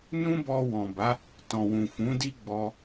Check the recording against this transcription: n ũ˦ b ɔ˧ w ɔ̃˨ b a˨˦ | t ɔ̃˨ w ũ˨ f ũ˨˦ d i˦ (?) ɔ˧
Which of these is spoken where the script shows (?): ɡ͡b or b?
ɡ͡b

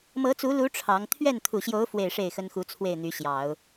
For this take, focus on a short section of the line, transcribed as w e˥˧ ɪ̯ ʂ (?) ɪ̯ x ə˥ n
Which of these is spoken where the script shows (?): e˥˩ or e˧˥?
e˥˩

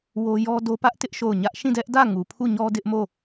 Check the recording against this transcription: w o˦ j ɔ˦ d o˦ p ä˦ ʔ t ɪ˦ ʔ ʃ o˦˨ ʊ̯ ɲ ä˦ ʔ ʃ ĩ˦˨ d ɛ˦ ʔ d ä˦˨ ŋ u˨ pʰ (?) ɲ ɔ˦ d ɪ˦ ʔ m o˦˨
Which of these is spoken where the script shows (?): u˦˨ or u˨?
u˦˨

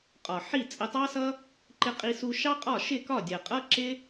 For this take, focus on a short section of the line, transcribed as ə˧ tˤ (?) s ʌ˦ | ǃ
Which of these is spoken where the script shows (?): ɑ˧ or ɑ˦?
ɑ˦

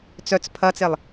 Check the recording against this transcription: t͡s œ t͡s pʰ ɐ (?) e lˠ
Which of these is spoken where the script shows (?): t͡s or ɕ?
t͡s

